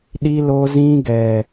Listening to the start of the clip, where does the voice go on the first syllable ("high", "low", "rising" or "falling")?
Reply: high